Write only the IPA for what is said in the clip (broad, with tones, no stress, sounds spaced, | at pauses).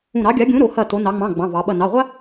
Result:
ũ˧˩ ɾ ɑ˨˥ ɡʲ a˨˥ ɡʲ ũ˨˥ ɾ o˩˧ h ɐ˧˩ t o˩˧ n ɑ˩˧ ŋ͡m ɑ̃˩˧˩ ɡ͡b ɑ̃˩˧˩ v ɑ˩˧ ɓ ɐ˧˩ n ɑ˩˧˩ ʁʷ a˦